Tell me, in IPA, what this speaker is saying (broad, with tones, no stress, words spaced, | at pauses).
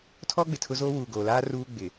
tʰɔ˦ ɡ͡bɪ˨tʰʊ˦zoː˦ wuː˨ɡoː˨laː˦ ruː˦ ɡ͡bɪ˨